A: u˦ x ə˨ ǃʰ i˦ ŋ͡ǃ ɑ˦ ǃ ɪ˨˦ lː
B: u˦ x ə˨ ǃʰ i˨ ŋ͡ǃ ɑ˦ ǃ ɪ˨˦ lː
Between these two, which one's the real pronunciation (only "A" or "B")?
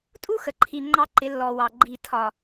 B